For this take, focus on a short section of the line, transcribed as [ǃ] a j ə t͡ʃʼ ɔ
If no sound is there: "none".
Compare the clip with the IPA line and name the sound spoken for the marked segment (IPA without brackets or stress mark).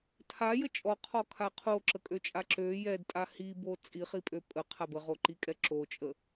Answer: tʰ